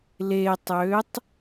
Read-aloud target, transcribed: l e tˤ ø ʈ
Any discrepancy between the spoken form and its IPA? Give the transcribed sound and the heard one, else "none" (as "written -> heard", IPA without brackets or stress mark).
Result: ʈ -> tˤ